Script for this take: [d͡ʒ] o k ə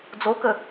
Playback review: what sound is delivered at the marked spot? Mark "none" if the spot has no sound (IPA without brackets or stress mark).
d͡z